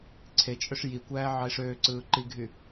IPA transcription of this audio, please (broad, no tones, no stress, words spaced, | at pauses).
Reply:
ǀʰet͡ʃʼøʂ jikʷæː ʕɑɪ̯ʂøːǀɯː ǃiɡʱy